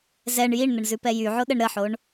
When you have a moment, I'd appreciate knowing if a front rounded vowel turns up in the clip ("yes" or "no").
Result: yes